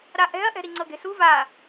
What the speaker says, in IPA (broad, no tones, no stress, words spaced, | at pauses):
ɾaʔɛ̤ɐ̯ʔɛ̤ ɾiŋ͡ǀɤɡe̤su va